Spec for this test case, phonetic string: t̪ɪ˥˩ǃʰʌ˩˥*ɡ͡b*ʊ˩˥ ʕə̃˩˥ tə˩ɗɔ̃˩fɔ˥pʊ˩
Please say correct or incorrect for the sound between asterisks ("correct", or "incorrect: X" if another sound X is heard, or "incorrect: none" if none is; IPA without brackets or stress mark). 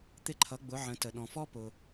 correct